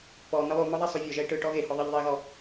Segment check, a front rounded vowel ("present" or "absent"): absent